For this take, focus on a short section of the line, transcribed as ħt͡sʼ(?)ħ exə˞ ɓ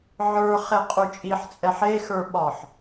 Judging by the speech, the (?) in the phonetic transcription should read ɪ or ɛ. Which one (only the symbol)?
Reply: ɛ